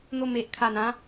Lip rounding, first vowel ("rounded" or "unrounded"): rounded